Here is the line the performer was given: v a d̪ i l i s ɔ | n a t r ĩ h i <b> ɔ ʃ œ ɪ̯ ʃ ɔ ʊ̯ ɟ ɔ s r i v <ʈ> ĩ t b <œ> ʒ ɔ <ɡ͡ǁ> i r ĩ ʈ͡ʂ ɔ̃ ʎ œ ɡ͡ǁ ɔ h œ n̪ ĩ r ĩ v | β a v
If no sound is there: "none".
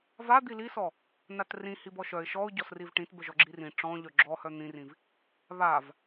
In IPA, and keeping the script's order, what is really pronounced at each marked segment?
b, ʈ, œ, ɡ͡ǁ

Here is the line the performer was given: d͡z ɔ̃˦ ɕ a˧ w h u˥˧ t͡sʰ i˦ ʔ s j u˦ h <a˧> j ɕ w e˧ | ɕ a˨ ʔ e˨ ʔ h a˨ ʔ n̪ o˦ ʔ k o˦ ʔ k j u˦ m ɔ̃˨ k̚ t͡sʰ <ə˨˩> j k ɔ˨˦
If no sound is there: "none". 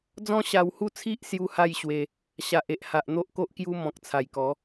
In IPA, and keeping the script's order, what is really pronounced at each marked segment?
a˥˧, a˨˩

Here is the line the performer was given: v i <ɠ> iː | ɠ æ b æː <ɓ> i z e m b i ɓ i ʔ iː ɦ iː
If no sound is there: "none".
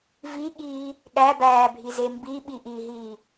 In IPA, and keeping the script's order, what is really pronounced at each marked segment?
ɠ, bʱ

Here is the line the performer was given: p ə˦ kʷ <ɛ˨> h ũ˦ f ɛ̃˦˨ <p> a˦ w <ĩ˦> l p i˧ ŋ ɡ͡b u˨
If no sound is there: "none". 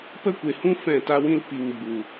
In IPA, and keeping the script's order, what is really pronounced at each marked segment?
e˨, t, ĩ˦

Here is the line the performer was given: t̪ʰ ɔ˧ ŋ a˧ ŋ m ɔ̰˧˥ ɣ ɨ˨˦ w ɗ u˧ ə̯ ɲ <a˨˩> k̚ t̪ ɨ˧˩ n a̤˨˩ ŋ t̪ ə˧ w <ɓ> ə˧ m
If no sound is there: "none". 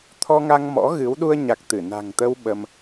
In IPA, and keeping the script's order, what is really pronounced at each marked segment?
a˨˩, ɓ

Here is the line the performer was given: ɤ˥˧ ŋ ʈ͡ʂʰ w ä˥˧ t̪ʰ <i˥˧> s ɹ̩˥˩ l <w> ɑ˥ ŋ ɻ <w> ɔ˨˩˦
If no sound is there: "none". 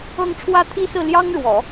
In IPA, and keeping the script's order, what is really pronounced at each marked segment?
i˥˧, j, w

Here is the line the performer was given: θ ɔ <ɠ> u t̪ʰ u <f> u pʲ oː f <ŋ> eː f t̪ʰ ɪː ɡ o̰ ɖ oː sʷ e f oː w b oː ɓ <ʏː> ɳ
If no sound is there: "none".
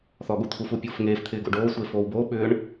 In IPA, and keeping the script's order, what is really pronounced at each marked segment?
ɠ, f, ŋ, ʏː

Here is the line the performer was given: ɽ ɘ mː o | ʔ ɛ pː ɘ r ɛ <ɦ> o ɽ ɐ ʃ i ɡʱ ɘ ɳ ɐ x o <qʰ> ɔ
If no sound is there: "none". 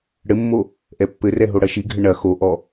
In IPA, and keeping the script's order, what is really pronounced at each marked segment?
ɦ, ʔ

